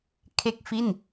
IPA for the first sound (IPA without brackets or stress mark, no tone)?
kʰ